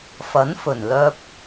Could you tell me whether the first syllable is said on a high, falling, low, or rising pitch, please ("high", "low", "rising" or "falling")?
rising